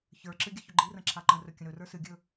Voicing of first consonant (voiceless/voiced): voiceless